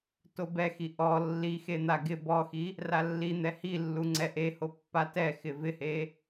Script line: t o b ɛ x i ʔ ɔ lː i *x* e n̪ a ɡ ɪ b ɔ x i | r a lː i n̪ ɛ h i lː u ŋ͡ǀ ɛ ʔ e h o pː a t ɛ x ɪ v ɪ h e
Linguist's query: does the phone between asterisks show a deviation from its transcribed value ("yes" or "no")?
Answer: no